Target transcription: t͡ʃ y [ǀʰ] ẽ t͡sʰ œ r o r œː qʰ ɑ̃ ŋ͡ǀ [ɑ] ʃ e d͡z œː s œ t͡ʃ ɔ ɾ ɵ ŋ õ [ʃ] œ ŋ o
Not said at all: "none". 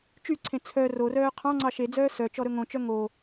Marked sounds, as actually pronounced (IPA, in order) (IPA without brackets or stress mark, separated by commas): ǀʰ, ɑ, t͡ʃ